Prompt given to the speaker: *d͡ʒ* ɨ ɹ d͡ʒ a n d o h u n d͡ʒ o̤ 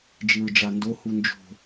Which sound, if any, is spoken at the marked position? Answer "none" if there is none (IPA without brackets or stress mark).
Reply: d͡ʒ